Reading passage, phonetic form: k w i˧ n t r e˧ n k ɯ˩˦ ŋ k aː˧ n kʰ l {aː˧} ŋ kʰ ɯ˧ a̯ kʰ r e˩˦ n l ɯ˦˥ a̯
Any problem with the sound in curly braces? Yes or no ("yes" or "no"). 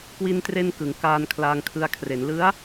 no